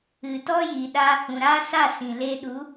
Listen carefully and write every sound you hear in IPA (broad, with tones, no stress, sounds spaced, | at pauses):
ɨ˨ t ɔ˦ j iː˨ ɗ aː˧ h ũ˨ ɾ aː˦ s a˦˨ s ĩ˨ l e˧ ɗ u˨˦